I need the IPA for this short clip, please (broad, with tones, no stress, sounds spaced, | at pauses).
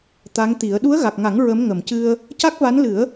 t̪ a˧˥ ŋ t̪ i˨˩˦ ə̯ ɗ u˧˥ ə̯ ɣ a˨˩ k̚ ŋ a˨˩˦ ŋ ɹ ə˧˥ m ŋ ə˨˩˨ m c ɨ˧ ə̯ | c a˦˥ k̚ v a˧˥ n l ɨ˨˩˦ ə̯